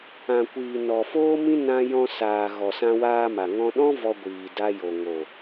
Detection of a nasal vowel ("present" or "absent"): present